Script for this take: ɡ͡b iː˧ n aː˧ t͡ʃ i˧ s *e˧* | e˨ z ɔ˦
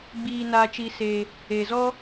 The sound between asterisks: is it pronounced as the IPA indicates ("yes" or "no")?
yes